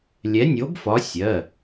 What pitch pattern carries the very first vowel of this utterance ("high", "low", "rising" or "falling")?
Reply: rising